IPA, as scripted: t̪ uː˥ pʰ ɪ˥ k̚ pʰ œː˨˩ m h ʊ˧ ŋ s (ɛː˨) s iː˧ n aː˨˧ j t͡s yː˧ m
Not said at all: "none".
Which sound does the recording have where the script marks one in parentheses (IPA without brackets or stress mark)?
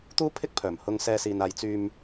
ɛː˥